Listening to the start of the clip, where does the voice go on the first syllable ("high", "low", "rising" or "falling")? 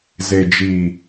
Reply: low